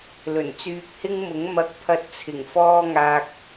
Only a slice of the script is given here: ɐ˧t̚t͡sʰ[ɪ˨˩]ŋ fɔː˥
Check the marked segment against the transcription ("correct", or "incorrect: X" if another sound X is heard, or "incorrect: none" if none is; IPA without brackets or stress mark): correct